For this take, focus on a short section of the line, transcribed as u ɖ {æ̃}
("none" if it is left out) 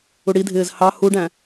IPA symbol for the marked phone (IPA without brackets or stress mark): æ̃